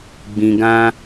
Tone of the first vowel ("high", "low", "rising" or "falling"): low